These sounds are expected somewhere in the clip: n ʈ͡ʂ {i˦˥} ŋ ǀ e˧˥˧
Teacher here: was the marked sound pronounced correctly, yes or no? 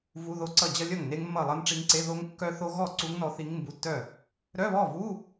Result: yes